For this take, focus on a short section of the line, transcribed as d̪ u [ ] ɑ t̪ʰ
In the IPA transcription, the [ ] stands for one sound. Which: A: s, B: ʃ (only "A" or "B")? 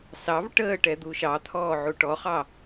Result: B